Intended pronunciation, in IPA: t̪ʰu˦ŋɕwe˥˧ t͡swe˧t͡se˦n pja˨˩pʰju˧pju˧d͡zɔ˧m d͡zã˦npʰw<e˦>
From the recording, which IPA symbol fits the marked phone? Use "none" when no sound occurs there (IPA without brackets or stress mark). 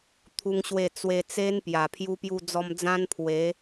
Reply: e˨˦